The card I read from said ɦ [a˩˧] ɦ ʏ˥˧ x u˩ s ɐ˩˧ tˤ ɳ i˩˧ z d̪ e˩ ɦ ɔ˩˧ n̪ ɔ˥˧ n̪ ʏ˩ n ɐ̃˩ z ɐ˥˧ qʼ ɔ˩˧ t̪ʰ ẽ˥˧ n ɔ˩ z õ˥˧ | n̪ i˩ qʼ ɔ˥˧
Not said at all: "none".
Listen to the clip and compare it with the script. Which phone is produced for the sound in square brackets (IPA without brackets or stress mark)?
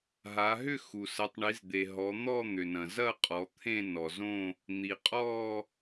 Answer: a˩˧